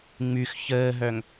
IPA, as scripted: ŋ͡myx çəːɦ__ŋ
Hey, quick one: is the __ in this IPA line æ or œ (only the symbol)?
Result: œ